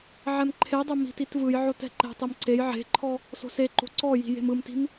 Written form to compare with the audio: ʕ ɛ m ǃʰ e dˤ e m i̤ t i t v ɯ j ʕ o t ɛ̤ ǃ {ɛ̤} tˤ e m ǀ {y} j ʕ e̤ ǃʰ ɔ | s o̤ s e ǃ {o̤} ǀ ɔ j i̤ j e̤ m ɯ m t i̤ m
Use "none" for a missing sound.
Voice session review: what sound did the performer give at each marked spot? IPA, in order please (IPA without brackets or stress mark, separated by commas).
ɛ̤, e, o̤